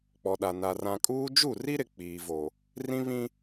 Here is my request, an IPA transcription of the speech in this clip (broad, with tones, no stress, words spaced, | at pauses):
k͡pɔ˨ɗa˨ na˨ rã˨kʼuː˦ d͡ʒu˦˨ri˦ɾɪ˨ k͡piː˨vo˨ | rĩ˦βĩ˦